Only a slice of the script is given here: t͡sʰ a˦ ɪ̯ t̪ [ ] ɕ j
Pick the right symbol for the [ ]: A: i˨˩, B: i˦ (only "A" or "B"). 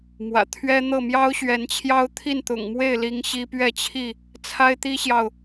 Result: B